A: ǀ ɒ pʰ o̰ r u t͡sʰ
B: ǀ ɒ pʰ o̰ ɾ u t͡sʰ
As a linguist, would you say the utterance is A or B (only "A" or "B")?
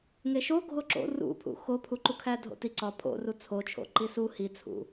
A